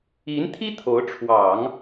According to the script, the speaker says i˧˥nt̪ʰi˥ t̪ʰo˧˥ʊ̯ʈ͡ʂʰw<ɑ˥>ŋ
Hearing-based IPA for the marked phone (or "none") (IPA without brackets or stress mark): ɑ˨˩˦